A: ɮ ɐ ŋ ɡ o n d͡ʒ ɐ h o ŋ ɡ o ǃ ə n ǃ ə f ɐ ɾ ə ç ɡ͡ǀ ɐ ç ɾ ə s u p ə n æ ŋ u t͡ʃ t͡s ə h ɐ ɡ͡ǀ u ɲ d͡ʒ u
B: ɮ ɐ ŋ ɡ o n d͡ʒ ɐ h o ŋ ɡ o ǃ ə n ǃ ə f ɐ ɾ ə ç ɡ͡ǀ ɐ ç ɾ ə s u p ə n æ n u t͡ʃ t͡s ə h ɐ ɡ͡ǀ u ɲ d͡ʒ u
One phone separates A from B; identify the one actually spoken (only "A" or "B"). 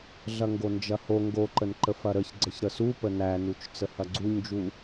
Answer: B